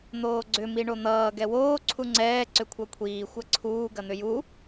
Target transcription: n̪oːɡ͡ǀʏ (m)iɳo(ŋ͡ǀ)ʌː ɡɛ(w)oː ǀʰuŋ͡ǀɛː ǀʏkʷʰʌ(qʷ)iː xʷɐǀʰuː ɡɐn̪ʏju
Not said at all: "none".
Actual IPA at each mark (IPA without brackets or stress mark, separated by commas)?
m, n̪, w, kʷʰ